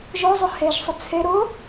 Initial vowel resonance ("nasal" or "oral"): oral